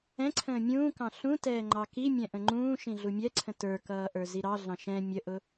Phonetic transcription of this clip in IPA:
ɛ̃ ǀʰ ə̃ː mʲ ũː k ɑ̃ ɬ ũ t ɛː ŋ͡ǃ ɑ k i mʲ ɛ̃ ʔ ə̃ ŋ͡ǃ ũː ʃ ĩ ɮ u mʲ ɛ ǀʰ ə̃ t ə˞ k ʌː ʔ ə˞ z i ɾ ɑ ɮ ɑ̃ ʃ ɛ̃ mʲ ə ʔ ʊ

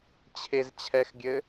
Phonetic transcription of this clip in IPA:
t͡ɕʰ e z t͡ɕʰ ɛ x ɡʲ ɘ

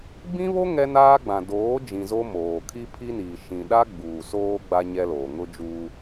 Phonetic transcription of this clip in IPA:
b ĩ˦ β o˦ ŋ ɛ˦ n aː˦ ɡ͡b ã˨ d oː˨˦ d͡ʒ ĩ˨ z o˦ m oː˨ kʰ i˦ pʰ i˦ n iː˨ ʃ ĩ˨ ɗ a˦ ɡ͡b uː˨ s oː˦ ɡ͡b a˦ ɲ ɛ˦ l oː˨ ŋ ʊ˦ d͡ʒ uː˦

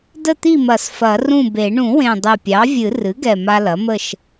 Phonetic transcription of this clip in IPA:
d ə˥˨ t̪ i˥˨ m ɐ˨˩˦ s f ɐ˨˩˦ r ũ˥˨ b e˨˩˦ ɳ ũ˨˩˦ w ẽ˨˩ dˤ e˨˩ pʲ ɑ˩˥ vʲ ɨ˨˩˦ r ɨ˩˥ ɡ ɛ˨˩ m a˦ l ɐ˩˥ m ə˥˨ ʃ

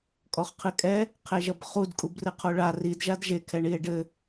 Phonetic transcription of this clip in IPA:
kʼ ɔ χ qʰ ɨ kʼ ɛ | qʰ e ʒ ɐ b χ u d kʼ u b r ɨ qʰ o ɭ a r i d ʒ a d ʒ e kʰ ɛ ɳ i e̯ ɖ ɘ

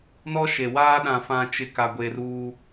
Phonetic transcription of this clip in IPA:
n ɔ˦ ʃ e˨ w aː˦ ɗ ã˨ f ã˨ t͡ʃ ɪ˨ k a˨ ɡʷ e˨ r uː˦

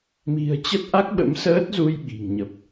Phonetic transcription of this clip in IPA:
m i̤˨˩ ə̯ t͡ɕ ə˦˥ t̚ ʔ a˦˥ k̚ ɓ ə̰˧˥ m s əː˦˥ t̚ z u˧ j ɓ i̤˨˩ ŋ ɲ ə˨˩ p̚

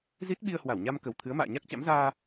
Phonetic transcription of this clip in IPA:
z i˦˥ t̚ ɓ i˧ ə̯ h w a˧˩ w ɲ a˧ m k ə˨˩ w t̪ʰ ɨ˨˦ ə̯ m a̰ː˧˨ ɲ a˦˥ k̚ t͡ɕ a̰˧˥ m z aː˧

